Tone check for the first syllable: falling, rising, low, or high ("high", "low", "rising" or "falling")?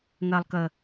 low